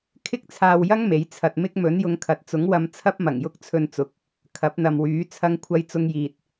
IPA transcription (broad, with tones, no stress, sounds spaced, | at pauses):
kʰ ɪ˥ k̚ t͡sʰ aː˧ w j ɐ˥ ŋ m e˨˥ j t͡sʰ ɐ˧ t̚ m ɪ˥ k̚ m ɵ˨˥ n j ʊ˨˧ ŋ kʰ ɐ˨ t̚ t͡s ʊ˨˥ ŋ w ɐ˧ m t͡sʰ ɐ˥ p̚ m ɐ˨˩ ŋ j ʊ˥ k̚ t͡sʰ ɵ˧ n t͡s ʊ˨˥ k̚ | kʰ ɐ˨˥ p̚ n̪ ɐ˨ m w yː˨˥ t͡sʰ ɐ˥ ŋ kʷʰ ɐ˥ j t͡s ʊ˥ ŋ j iː˧ t̚